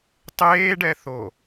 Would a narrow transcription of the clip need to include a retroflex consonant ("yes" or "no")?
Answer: yes